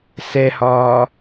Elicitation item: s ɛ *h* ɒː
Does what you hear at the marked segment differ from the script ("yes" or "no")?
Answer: no